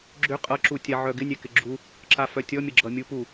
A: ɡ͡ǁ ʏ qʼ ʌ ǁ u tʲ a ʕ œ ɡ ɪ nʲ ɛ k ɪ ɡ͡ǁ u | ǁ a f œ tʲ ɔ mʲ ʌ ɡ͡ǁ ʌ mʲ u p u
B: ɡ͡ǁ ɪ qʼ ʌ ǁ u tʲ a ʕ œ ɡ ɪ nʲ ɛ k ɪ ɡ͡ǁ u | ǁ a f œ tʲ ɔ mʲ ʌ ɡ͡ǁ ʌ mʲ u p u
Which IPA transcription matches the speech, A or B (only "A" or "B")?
A